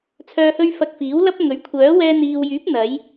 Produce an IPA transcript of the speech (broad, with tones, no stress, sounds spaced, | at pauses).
t͡sʰ œː˨ h ɵ˧ ɥ f ɐ˧ k̚ f iː˨˥ w l ɐ˥ p̚ ŋ ɵ˨˥ ɥ kʷʰ œː˨˥ w ɛː˧ n̪ iː˨ w j yː˨˥ p̚ n̪ ɐ˨˥ j